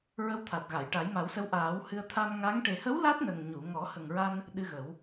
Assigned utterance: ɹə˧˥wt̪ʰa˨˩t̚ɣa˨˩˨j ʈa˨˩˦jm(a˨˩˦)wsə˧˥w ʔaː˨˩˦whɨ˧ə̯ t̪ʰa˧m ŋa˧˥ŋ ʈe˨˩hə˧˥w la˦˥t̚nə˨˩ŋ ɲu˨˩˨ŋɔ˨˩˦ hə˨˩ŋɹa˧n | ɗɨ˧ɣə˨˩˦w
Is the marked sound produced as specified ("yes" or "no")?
yes